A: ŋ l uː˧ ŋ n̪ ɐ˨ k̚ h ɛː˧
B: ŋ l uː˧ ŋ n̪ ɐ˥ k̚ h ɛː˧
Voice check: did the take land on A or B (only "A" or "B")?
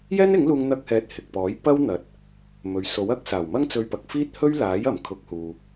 B